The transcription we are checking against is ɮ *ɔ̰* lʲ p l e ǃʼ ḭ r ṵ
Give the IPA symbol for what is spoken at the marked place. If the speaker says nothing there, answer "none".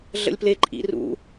ə̰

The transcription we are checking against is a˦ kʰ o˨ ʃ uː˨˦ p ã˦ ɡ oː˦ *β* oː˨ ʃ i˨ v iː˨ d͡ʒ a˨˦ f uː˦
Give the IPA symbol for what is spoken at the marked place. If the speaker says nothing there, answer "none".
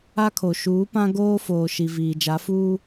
f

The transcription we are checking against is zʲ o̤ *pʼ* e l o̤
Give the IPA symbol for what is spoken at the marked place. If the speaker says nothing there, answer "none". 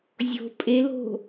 pʼ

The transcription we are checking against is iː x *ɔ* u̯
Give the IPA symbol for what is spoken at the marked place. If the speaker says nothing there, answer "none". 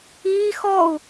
ɔ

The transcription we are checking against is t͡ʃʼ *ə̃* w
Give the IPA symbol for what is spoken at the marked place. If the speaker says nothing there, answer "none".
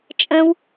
ə̃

